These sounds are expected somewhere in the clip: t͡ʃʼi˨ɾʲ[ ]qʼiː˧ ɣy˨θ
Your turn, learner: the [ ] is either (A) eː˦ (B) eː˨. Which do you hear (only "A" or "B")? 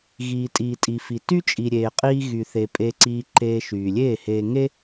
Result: B